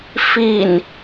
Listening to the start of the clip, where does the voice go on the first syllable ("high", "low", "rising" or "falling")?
low